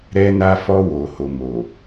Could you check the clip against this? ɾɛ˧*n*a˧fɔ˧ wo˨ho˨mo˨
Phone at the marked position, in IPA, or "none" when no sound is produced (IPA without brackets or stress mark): n